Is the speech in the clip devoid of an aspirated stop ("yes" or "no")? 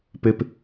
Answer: yes